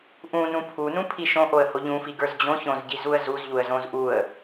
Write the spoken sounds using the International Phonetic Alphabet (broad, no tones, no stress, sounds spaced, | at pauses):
ʔ ũ n ũ pʰ u n ũ pʰ i ʃ õ ʔ o ə̯ h o ʎ ũ f i ɡ ə˞ z d͡ʑ õ ç õ z ɟ i z u ə̯ z u z ʎ u ə̯ z õ z ʔ u ə̯